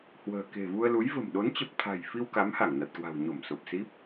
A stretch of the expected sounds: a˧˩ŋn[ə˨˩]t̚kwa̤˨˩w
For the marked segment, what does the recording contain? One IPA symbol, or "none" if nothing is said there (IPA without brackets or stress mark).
a˨˩